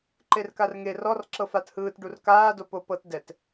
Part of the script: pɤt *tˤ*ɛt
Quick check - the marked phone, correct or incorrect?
incorrect